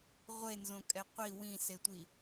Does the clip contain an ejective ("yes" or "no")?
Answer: yes